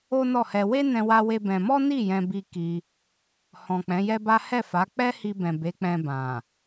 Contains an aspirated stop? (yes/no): no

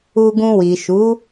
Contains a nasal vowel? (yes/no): yes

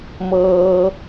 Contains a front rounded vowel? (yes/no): no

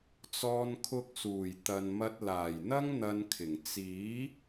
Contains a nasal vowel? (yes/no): no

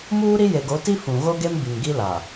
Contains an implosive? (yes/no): no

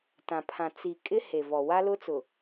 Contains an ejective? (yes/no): yes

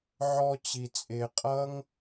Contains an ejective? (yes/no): yes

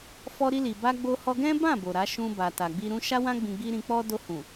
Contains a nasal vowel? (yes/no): yes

